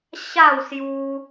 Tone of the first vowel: falling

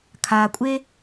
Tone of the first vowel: low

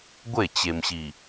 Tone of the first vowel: falling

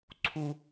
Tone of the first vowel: high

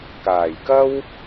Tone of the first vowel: low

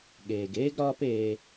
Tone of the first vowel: low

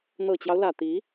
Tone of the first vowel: low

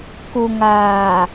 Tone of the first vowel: low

